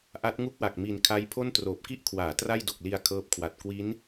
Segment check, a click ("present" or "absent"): absent